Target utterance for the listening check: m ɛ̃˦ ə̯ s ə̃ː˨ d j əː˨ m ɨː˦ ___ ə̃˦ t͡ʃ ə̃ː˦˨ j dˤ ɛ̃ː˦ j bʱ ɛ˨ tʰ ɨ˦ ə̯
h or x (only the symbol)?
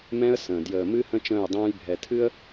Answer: h